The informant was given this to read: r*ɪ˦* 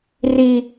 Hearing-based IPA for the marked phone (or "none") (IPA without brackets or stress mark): i˦